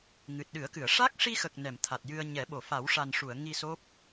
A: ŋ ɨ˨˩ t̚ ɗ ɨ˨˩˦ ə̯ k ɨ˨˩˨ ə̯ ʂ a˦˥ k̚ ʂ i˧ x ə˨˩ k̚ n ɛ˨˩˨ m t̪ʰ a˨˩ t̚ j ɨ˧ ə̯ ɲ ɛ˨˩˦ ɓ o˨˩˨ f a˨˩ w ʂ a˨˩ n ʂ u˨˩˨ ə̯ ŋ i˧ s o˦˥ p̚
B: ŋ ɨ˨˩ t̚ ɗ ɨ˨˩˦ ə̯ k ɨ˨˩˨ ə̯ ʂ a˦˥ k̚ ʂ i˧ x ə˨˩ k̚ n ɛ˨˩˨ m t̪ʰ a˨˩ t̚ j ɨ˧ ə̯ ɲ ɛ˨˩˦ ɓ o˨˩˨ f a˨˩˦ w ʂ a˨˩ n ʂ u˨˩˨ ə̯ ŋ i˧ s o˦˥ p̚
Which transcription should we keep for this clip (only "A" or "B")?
B